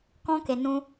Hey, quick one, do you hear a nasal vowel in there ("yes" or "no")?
yes